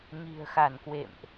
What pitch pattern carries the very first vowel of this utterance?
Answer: low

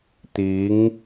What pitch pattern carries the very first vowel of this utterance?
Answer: rising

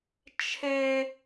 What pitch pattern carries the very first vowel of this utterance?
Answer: high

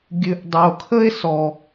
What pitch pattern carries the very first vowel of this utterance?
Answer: low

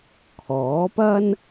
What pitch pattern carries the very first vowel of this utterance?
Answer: rising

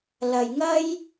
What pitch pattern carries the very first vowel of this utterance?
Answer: low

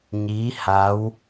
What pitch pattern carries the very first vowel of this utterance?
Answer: rising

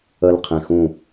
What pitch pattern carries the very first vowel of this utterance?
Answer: high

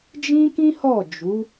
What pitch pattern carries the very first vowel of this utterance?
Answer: high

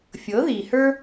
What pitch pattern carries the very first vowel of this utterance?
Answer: rising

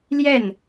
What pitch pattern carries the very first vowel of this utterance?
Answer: falling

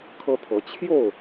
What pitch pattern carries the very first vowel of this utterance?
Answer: high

